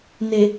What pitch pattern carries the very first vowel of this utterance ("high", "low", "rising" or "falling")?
low